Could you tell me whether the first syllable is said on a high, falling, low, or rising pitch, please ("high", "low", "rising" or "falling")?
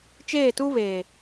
falling